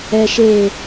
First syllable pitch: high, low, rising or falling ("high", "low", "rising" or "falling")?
low